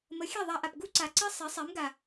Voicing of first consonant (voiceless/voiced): voiced